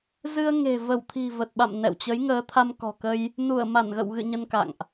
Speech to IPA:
z ɨ˧ ə̯ ŋ e̤˨˩ v ə˧˩ w t̪ʰ i̤˨˩ v ə˨˩ t̚ ɓ a̰˧˨ m n ɛ̰˧˨ w t͡ɕ ə˨˦ j ŋ əː˨˦ t̪ʰ a˧ m k ɔ̤˨˩ k ə˧ j | n u˧˩ ə̯ m a˧˩ n ɣ ə̰˧˨ w ɣ ɨ̰˧˨ ɲ ə˧ n k a̰˧˨ ŋ ʔ

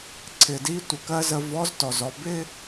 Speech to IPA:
ǀʰ ɪ˩ d i˧˥ tʷ ə˩ k ɜ˥ z ə˧ v ɔ˧˥ z t ɔ˩ z ɔ˩˧ b ɪ˥

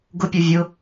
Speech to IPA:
ɡ ʊ pʲ u vʲ ʊ

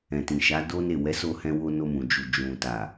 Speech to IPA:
ɛ̃˨ t ĩ˨ ʃ a˨˦ d o˦ n e˦˨ w ɛ˨˦ s o˧ h ɛ̃˧ w o˧ n o˧ m ũ˨ d͡ʒ u˨ d͡ʒ ũ˨ t a˨

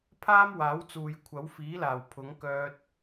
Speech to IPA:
pʰ aː˥ m w aː˨˥ w t͡s uː˨ j kʷʰ ɐ˨˥ w f iː˨˥ l aː˨˩ w pʰ ʊ˨˥ ŋ k œː˧ t̚

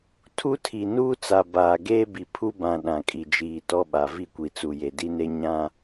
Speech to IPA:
tʰ u˦ tʰ i˨ n uː˦ t͡s a˨ b aː˨ ɡ eː˦ b i˨ pʰ u˦ b ã˨ ɗ ã˨ kʼ i˨ d͡ʒ iː˨ t ɔ˦ ɓ a˨ v i˦˨ kʷ i˨ t͡s u˨ j e˨ d i˦ n e˦ ɲ ã˦

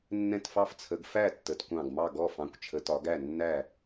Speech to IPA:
nː ɛ̃˥˩ t f ɑ˥˩ f t͡sʰ ə˨˦ ɡ f æ˥˩ tː ə˨˦ t kʷ ɑ̃˥˩ ɡ m ɑ˥˩ ɡ ɔ˥˩ f ɑ̃˨˦ kʷ t͡ʃʰ ə˨˦ t ɒ˨˦ ɡ æ˥˩ nː æ˥˩

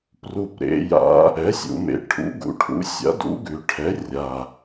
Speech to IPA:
p r u˨˩ p ɾ ḛ˩˧ j a̰˩˥ | ɛ˩˥ sʲ ṵ˩˧ m ḛ˩˧ ʈʰ ṵ˩˥ ɡ ṵ˩˧ ʈʰ ṵ˩˥ sʲ a̰˩˥ d ṵ˩˥ ɡ ʉ˩˧ ʈʰ ɛ˩˥ rʲ a˨˩

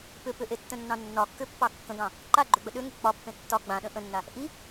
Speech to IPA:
p ʏ p ʏ ʔ e tː ə̃ nː ɑ̃ nː ɒ kː ʏ pː ɑ kː ə̃ ɡ ɑ̃ | ǃ a ɡ͡ǃ ʏ ɡ͡b ə ɗ ʏ ŋ ʏ k͡p ɒ pː ẽ tː ɒ ɡ͡b ã ɗ ə̃ ʔ ə̃ nː a | ʔ i

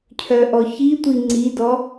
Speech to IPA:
cʰ œ ʔ ɔ ç i tʷ i ŋ͡ǀ i d ɔ

